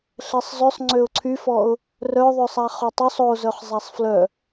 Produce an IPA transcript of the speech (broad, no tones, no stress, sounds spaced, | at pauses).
ɬ ɛ sˤ z ø sˤ ŋ͡ǀ ø ʊ̯ ǀʰ y f ɔ ʊ̯ | r œ ðˤ ø sˤ a χ o tˤ ø sˤ o z œ χ zˤ a sˤ f l œ